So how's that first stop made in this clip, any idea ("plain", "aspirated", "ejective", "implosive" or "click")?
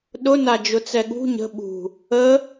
implosive